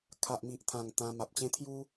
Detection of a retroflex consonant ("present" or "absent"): absent